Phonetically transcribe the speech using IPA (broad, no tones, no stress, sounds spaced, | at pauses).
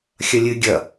xʲ ɐ lʲ ɨ ɡʲ ɐ